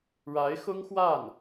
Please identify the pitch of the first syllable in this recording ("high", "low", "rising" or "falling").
rising